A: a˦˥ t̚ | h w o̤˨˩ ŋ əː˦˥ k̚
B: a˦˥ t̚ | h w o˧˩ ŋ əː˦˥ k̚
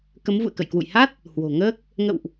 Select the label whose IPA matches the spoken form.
A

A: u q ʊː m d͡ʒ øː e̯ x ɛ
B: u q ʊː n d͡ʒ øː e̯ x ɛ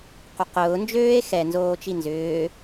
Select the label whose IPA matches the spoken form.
B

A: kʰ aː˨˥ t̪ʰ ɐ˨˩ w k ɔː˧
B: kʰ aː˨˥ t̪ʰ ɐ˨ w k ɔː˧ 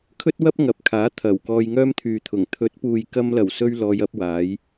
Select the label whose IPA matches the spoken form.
A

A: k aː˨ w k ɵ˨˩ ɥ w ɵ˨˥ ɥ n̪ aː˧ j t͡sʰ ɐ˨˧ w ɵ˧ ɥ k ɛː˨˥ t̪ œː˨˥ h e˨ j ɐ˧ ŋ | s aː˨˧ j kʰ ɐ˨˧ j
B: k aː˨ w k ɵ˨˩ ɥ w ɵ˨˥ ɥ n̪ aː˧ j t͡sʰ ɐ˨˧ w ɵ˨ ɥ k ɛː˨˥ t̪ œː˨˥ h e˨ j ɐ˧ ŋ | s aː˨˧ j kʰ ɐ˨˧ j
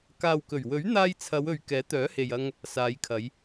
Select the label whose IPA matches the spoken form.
B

